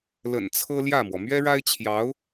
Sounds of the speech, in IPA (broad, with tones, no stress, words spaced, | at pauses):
lə̰˨˩n t͡sʰɤ˥ljä˥˩mwɔ˩ mɥɛ˥ɻa˥ɪ̯t͡ɕʰjɑ˧˥ʊ̯